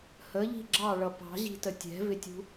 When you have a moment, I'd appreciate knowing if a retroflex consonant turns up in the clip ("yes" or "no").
yes